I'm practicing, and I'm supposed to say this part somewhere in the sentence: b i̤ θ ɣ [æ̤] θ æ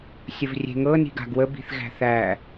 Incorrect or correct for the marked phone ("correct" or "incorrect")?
correct